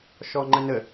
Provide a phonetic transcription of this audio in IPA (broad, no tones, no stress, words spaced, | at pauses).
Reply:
ʃɔŋ͡ǃənə